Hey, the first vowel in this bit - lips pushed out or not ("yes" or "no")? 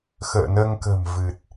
no